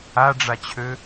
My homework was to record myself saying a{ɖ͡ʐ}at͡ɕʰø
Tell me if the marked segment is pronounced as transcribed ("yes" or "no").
yes